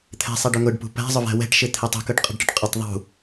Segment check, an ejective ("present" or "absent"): present